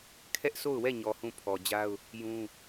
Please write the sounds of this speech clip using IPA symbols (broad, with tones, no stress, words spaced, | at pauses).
kʰɛ˦ʔso˦˨ʊ̯wɛ˦˨ɲɔ˨ hũ˦˨pʰɔ˨d͡ʑa˦ʊ̯ | jũ˦